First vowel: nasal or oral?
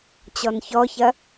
oral